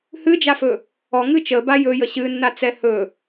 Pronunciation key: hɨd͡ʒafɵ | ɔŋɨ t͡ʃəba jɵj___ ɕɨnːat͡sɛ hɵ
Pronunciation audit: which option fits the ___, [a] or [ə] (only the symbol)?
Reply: ə